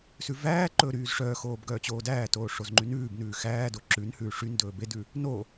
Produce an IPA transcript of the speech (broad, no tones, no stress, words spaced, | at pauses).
sʉvæːǃɵː ɾyːzʂœːxoːb ɡœːt͡ɕoːdæːtoː ʂozŋ͡ǃynʉːbnʉː xæːdo ǁʉnhʉː ʂyndɵː bedʉ | no